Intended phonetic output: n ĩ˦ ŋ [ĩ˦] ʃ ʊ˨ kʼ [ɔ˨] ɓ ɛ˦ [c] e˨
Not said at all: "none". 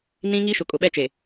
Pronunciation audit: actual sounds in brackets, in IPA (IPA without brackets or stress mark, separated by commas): i˦, ʊ˨, t͡ʃ